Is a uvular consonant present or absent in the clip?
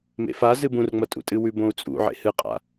present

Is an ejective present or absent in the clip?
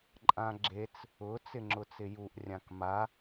present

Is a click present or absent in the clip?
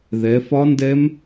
absent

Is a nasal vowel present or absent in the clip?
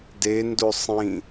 present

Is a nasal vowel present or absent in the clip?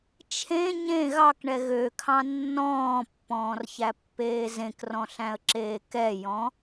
present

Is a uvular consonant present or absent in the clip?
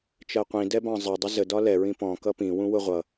present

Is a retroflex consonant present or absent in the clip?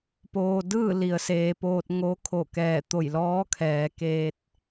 absent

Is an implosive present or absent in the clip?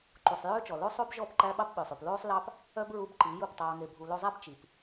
present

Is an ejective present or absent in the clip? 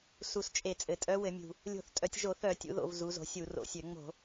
present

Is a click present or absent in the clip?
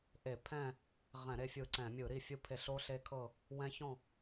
present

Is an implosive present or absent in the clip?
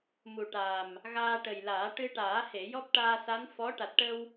absent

